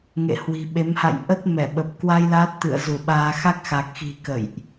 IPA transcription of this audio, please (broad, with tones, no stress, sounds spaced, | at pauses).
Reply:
ŋ ḛ˧˨ h w i̤˨˩ ɓ e˨˦ m h a̰˧˨ j ʔ ə˦˥ t̚ m ɛ˧˩ ɓ ə˨˩ p̚ k w a˧ j l aː˦˥ t̚ t̪ ɨ̰˧˨ ə̯ z u˧˩ ɓ aː˧ x a˦˥ k̚ x a˨˩ k̚ x i̤˨˩ k ə̰˧˨ j ʔ